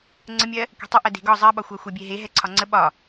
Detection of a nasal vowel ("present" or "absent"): absent